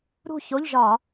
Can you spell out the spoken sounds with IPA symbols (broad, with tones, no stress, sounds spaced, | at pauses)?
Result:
ɾ ṳ˥˧ ç o˧˥˧ ʎ ʒ ɒ˧˩˧